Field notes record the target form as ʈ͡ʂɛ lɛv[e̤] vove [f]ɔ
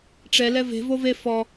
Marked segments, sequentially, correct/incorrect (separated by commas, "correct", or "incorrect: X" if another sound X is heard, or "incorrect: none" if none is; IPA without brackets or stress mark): correct, correct